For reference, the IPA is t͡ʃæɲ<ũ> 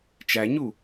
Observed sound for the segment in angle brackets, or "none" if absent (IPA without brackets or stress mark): u